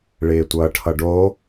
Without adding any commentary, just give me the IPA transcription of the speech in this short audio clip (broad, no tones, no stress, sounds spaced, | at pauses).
ɭ ɪː tʷ ʌː ʈʰ ʌ ɖ o